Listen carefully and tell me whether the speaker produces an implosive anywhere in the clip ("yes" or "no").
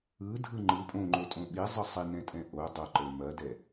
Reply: yes